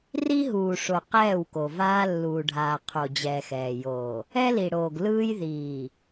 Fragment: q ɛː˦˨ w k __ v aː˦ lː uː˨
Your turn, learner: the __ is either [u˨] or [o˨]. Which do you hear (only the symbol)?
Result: o˨